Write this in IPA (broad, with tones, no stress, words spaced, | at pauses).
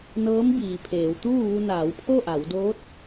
nɤː˧˥m biː˩pʰeː˩˧wt̪uː˥˨ʋu˧ naː˩˧wpʰo˥˨ʔa˩˧wdoː˧˥t̚